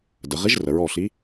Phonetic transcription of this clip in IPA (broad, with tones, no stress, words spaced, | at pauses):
də˩˧ ʁi˧˥ʒrə˩˧ɹɔ˧˩ɬi˧˥